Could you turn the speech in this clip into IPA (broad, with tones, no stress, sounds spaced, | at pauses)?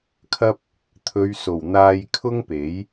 kʰ ɐ˥ p̚ | t̪ʰ ɵ˨˧ ɥ s o˨˩ w n̪ aː˧ j kʰ ʊ˥ ŋ p e˨˥ j